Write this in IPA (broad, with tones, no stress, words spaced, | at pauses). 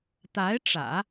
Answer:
t̪a˧˥ɪ̯ʈ͡ʂä̰˨˩˦